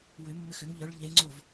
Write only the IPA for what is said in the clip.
wʏ mːʏxʏŋ ʎœɭ ʎe ŋ͡ǀov

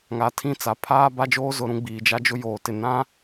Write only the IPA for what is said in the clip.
ŋa˨tʰĩ˦˨t͡sa˨ pʰaː˦ba˦d͡ʒoː˦ zʊ˦ɾũ˦ ɡ͡biː˨d͡ʒa˦d͡ʒʊ˦ joː˨tɪ˨ nã˦

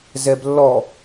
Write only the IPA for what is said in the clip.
zɛblːɔ

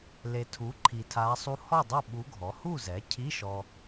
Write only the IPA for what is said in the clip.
le˨tʰu˩˥ ǃʰi˨tʰa˧˥sˤu˥ hɔ˥˨dˤo˥˨ ɓu˧˥ɡʱɔ˩˥ hu˥˨zɛ˩˥cʰi˧˥˧ ʃɔ˥

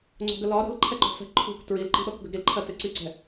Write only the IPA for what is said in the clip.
ŋ͡ǀɔ̤ɡəlɒ ɾə̤l ǃʰɛǃɔ̤fɛ̤ ǃʰṳk tɹilǃi̤ɗɔkɡəɡ ɾilǃʰɜ tɪǀiǀɛ̤

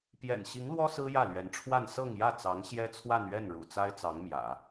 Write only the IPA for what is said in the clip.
pjɛ̰˨˩nɕi˧˥ŋlwɔ˥ sɹ̩˥jä˥˩lɥɛ˧˥nʈ͡ʂʰwa˥˧n sɤ˥˧ŋjä˥˩ t͡sɑ˧˥ŋɕjɛ˥t͡sʰwa˥˧n ɥɛ˥˩nɻṵ˨˩ t͡sa˥ɪ̯t͡sɑ˧˥ŋmjä̰˨˩˦

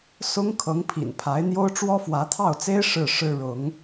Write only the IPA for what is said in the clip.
sʊ˥ŋ kʰɤ˧˥ŋ pʰḭ˨˩npʰa˧˥ɪ̯n̪jo˥ʊ̯ ʈ͡ʂwɔ˥fwä˧˥t̪ʰɑ˥˩ʊ̯t͡se˥ɪ̯ ʂɻ̩˥˩ʂɻ̩˥ɻʊ˧˥ŋ

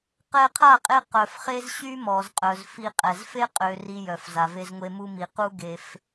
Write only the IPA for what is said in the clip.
qɛ˧qʰa˦˨qʼe˧ qœ˨fχe˦z ɕy˦mɔ˨zqʼœ˨z fi˧qʼɛ˨z fe˦qʼø˨ ri˦jœ˨f za˨ve˧zŋʷe˧mu˦ mi˨qu˦ ɡe˧f

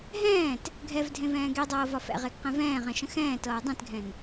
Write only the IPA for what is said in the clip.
ɦɛ̃ːt | ɡʱɛv dʱẽvɛ̃ːɡedˤɤː vɒfɛ̰ʁeɡ qɛ̃vɛ̃ːʁɛ̃ ʃə̃xɛ̃ːtɤː dˤẽtɡʱɛ̃n

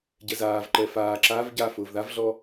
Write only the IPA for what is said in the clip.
ɟɛzaːvǃɛ faː ǁav ɟa fʊːvðavɮɔ

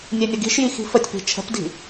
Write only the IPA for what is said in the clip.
nʲenʲəɡi̤ʃji xi̤fətʲpi̤ t͡ʃʰə̤pdi̤

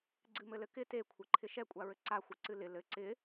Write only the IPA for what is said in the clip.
ɡ͡ǀɨmɘlɘkɪ tekʷʰɘǃʰɪ ʃɛkʷʼaɹɘ ǀaxʷɨ ǀɨlɪ lɘ ǀɪ

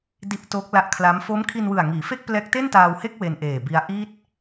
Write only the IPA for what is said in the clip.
di˦˥ʔtoː˦˥k̚la˦˥ʔkʰla˦˥m fo˦˥mkʰi˧nwɯ˨˩a̯ ŋiː˩˦fe˥˩k̚plɛː˦˥k̚ te˥˩ntaː˧whe˥˩k̚ we˧nʔeː˨˩bi˦˥a̯ ʔi˥˩t̚

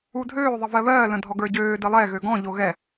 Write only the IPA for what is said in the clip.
udʱøːðˤə vɜβɜːlə̃ dʱɔɡə˞ɟøː dəlˠɛ ɣøɡɔ̃ʎo ɣɛ

